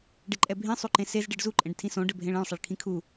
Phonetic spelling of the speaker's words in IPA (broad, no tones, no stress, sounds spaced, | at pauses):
ɖ e ǃʼ ɛ bʱ ĩ sˤ u ǃ ẽ s e z ɖ i ɖ z u ǃʼ ẽ ɖ tʰ ĩ s õ ɖ ɘ bʱ ẽ ɭ ẽ ɭ sˤ ɐ ɭ kʰ ĩ kʰ u